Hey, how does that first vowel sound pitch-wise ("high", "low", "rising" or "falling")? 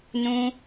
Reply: high